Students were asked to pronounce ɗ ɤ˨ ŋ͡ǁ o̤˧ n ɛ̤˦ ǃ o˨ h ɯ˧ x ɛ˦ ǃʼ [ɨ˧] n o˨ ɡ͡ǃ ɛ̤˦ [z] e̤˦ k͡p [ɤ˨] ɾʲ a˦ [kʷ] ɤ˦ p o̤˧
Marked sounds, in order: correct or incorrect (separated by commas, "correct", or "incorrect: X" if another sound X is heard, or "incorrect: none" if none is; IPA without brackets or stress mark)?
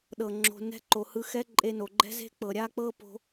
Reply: incorrect: e˧, correct, correct, incorrect: k͡p